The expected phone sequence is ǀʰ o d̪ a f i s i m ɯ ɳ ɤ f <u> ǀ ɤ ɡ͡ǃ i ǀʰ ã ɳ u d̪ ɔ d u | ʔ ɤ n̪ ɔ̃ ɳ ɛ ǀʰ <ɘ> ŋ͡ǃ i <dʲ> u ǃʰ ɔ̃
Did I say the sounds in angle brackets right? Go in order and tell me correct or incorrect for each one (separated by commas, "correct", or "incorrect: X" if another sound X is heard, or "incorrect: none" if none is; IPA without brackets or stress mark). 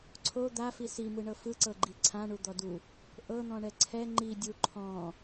incorrect: ɯ, incorrect: ɛ, correct